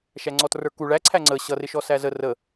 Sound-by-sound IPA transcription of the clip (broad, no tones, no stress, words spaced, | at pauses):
ʃæŋ͡ǀɔtrə˞ku ɭæǀʰæ ŋ͡ǀə ɕʌrɪ ʃɔsæzə rə